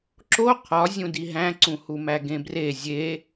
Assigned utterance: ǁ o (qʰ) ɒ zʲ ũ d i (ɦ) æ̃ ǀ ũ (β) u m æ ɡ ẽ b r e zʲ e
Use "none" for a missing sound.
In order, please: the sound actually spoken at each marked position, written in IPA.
qʰ, ɦ, h

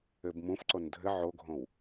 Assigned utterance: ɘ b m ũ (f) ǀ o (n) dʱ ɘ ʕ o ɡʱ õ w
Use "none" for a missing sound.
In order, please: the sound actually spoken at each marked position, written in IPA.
f, n

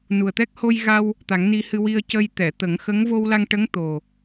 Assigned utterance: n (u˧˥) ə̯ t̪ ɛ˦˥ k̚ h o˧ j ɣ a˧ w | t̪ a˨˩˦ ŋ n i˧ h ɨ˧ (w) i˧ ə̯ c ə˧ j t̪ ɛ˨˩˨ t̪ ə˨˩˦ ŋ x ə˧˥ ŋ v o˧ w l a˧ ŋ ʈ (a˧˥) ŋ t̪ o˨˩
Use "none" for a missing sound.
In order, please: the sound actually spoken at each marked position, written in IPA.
u˨˩, w, ə˧˥

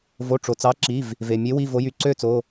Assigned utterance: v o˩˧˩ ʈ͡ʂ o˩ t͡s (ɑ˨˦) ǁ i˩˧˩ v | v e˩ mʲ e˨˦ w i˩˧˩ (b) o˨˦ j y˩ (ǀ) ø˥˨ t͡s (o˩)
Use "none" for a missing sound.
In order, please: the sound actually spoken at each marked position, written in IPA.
ɑ˨˦, v, ǀ, o˩˧˩

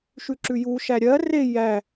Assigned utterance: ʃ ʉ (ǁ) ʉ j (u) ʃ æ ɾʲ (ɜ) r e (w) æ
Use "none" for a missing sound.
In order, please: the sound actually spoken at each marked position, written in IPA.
ǁ, u, ɜ, j

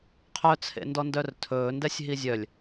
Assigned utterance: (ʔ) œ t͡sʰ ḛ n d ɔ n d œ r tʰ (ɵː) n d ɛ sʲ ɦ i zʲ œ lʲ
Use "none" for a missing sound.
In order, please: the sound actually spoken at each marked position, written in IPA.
qʰ, ɵː

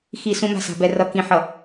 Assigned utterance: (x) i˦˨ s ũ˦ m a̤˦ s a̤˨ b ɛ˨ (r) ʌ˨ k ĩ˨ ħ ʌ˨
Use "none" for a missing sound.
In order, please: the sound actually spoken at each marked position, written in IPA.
x, r

